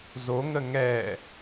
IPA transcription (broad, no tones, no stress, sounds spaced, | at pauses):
z o ŋ ə ŋ ɛː